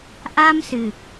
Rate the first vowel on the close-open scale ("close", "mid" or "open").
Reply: open